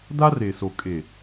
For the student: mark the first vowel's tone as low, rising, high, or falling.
high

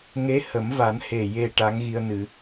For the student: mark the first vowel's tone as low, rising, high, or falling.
rising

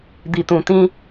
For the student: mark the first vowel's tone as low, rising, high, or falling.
low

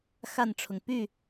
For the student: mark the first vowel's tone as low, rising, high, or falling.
falling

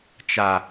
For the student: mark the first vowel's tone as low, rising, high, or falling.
low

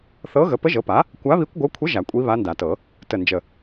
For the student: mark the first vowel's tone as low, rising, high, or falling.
rising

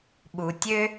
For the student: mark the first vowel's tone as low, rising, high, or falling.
low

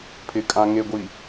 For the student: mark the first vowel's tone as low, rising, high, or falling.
low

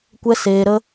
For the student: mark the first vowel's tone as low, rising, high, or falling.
high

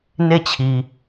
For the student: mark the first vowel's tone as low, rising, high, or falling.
falling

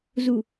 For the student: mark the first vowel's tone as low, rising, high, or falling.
low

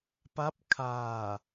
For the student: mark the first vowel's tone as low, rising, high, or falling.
rising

